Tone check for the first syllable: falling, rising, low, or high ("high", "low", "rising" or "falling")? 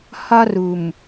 high